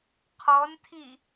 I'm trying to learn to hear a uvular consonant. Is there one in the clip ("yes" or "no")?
yes